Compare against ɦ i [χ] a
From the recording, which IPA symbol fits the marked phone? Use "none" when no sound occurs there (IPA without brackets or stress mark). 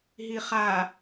χ